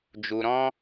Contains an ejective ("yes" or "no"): no